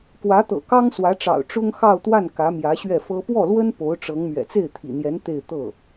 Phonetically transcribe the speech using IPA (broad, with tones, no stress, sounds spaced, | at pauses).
k w ä˧˥ t̪ ɤ̰˨˩ k ɑ˥ ŋ s w ä˧˥ ʈ͡ʂ ɑ̰˨˩ ʊ̯ ʈ͡ʂ ʊ˥ ŋ x ɑ˥˧ ʊ̯ t̪ w a˥˩ n k ä˧˥ m j ä˧˥ ɕ ɥ ɛ˥˩ f ɤ˥ p w ɔ˥˩ l w ə˥ n p o˧˥ ʊ̯ ʈ͡ʂ ɤ˧˥ ŋ m ɥ ɛ̰˨˩ t͡s e˥˩ ɪ̯ t̪ʰ ḭ˨˩ n̪ j ɛ˧˥ n t̪ e˥˧ ɪ̯ t̪ ɤ˥˩